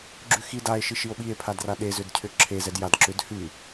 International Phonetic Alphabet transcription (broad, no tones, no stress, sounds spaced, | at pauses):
ɡ͡ǁ ʉ x i d a e̯ ʃ i ʃ i o̯ ɓ i e̯ pʰ a d r a ɗ e z ʏ d cʰ ʏ ǁʰ e z ɛ d j a d ǁ ʏ d h ʉ